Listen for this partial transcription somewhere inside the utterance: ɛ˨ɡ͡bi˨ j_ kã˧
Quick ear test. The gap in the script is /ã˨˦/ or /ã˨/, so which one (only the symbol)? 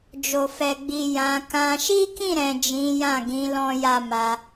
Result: ã˨˦